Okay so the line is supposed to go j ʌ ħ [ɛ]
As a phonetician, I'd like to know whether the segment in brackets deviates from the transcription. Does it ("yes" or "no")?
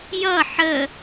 yes